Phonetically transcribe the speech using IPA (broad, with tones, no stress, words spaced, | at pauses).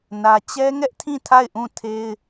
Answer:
nä˦ t͡ɕɛ˦ŋɛ˦ʔtʰĩ˦˨ tʰa˦˨ɪ̯ʔũ˦˨tʰe˦ɪ̯